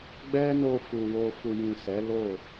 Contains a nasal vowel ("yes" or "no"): yes